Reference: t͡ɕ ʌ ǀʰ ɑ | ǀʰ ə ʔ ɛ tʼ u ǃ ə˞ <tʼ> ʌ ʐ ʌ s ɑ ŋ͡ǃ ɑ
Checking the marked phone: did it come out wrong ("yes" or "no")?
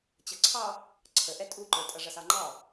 no